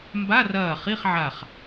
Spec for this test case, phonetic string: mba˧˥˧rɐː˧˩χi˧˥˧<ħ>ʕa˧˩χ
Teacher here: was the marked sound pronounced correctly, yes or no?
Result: no